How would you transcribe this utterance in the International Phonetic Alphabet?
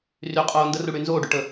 r y qʼ oː n d ə r u ɽ y n z oː ɖ y ʈ ə

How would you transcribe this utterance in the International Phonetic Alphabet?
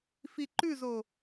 f i ǃ ʉ z o

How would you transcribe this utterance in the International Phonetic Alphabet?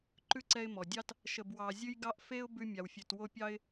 ǃ ʉ˥ ǀ ɛ˦ ɪ̯ m ɔ˩ dʲ ɑ˥ t | ʃ ə˨ b w ɑ˨ zʲ ʉ˥ j ɡ ɑ˥ ʔ f e˦ ʊ̯ b ʉ˦ mʲ a˨ w fʲ ʉ˨ t w o˥ pʲ ɑ˥ ɪ̯

